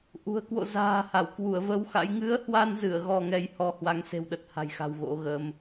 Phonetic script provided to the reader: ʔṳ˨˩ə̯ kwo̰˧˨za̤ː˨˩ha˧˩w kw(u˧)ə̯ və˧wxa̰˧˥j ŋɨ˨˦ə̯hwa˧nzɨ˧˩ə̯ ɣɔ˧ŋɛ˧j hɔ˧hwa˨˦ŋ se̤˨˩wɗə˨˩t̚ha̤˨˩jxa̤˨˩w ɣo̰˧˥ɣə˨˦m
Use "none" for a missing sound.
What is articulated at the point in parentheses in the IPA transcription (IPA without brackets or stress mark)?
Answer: u˧˩